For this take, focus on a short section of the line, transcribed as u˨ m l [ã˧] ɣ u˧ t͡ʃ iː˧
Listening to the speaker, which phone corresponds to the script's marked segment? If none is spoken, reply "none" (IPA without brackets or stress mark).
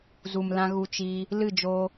ã˧